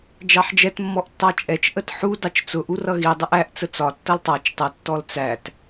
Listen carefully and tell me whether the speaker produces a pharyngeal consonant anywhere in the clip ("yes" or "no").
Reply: yes